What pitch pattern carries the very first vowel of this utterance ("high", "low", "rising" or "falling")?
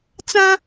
high